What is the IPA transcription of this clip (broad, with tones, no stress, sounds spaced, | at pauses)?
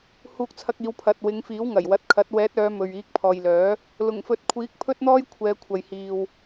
h uː˧ k̚ t͡sʰ ɐ˧ k̚ iː˨˧ w pʰ ɐ˨ t̚ w ɪ˨˧ ŋ f iː˨˥ w ŋ ɐ˨˩ j w ɐ˨˥ t̚ kʰ ɐ˨˥ t̚ w ɛː˨˥ t̚ œː˨˧ m ɵ˨ ɥ iː˨˥ k̚ pʰ ɔː˨ j l œː˨˥ | l ʊ˨˩ ŋ f ɵ˨˥ t̚ kʷʰ iː˨˥ k̚ pʰ ɵ˥ t̚ n̪ ɔː˥ j kʷʰ ɛː˨˧ kʷʰ ɐ˨ j h iː˨ w